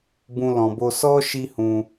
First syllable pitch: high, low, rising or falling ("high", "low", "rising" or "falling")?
high